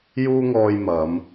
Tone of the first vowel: high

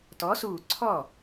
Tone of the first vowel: rising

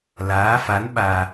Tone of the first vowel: rising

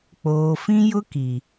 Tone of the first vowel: low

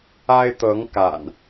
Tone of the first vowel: high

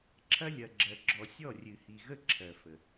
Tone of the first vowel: high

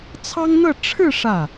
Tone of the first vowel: high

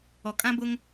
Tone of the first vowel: low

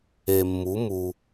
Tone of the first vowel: low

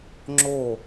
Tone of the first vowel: falling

